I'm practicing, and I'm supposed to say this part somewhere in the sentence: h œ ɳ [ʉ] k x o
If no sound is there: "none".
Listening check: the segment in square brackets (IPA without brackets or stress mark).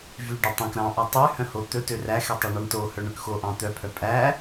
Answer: ø